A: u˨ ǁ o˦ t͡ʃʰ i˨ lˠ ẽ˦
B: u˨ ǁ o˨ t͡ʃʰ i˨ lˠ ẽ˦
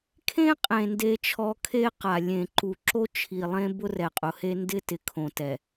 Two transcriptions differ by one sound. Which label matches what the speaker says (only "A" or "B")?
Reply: A